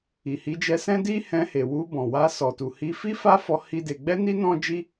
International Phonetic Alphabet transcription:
i˨hi˨˦d͡ʒɛ˧sɛ̃˦ di˦hɛ̃˧he˨ wu˧bɔ̃˨wa˧ sɔ˨tu˨hi˧fi˦ fa˦fɔ˧ hi˦de˧ ɡ͡bɛ˦ni˦ nɔ̃˦d͡ʒi˦

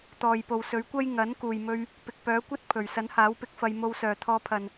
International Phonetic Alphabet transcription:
t̪ɔː˨jpo˨wsɵ˨˥ɥkʷɐ˥j ŋɐ˨˥n kuː˨jmɵ˧ɥ | pɪ˨k̚pœː˨˥kʷɐ˥t̚ pʰɵ˨˩ɥsɐ˨˥nhaː˨˥wpɪ˧k̚ fɐ˧jmo˧wsœː˨ t̪ʰɔː˧pʰɐ˨n

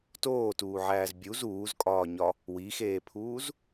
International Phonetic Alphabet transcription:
toːtuːʕæːz bʲuz uːzkʼɒːɲɒ | wixeːpʰuːz

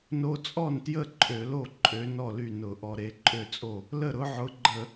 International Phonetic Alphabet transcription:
no˧t͡sʼɔ˥˩ntjə˥˩ ǃʼø˧˩˧lo˥˩ ǃʼø˨˥ nɔ˥˩ly˥˩nʊ˧˩˧ ʔɔ˧ɾe˨˥ ǃʼø˥˩t͡sʼo˥˩ | lə˥˩ɾʊ˨˥ʕʊ˨˥ɡ͡ǃə˧˩˧

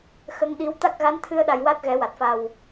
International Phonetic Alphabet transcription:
xə˧ŋɗi˧˥w t̪a˦˥k̚ɣa˧˥nt̪ʰɨ˧ə̯ɗa˨˩j wa˦˥t̚ɣɛ˨˩˦wa˨˩t̚fa˨˩w

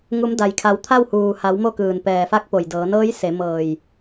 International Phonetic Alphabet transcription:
ŋu˩˧m da˩jkʰa˩˧wt̪ʰa˥˨w huː˩ha˩˧wmo˧ kɯː˩npɛː˩ fa˧˥k̚po˩jdɤː˩˧ nɤː˧˥jse˩˧ mɤː˧˩j

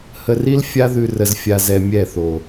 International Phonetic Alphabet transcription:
hə˧ri˦l fʲa˦ðʉ˧ rə˧zfʲa˧ zɛ˧mʲɛ˦˨θo˨

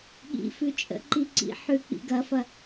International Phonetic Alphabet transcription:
ɠḭfʉ t͡ʃʼə̰ǃi ǀḭħʉk͡pḭ ɡɐfɐ

